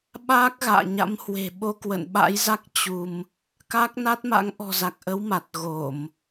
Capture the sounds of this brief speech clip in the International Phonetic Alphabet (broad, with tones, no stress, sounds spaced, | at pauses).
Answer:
ɓ aː˦˥ k̚ ɣ a̰ː˧˨ ɲ a̰˧˥ m h w e̤˨˩ ɓ o˧ k w ə̰˧˨ n ɓ a̰˧˥ j z a˦˥ k̚ t͡ɕ u˧ m | k a˦˥ k̚ n a˦˥ t̚ m a̰˧˥ ŋ ʔ ɔ̤˨˩ z a˨˩ k̚ ʔ ə˨˦ w m a˨˩ t̚ ɣ o˧˩˨ m